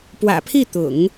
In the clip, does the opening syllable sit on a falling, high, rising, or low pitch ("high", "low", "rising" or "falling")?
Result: low